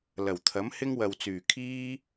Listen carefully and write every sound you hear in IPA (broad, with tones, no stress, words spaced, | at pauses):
lɐ˨˩wt̪ʰɐ˨˥mhɪ˥ŋwɐ˨w t͡syː˨˩kʰiː˥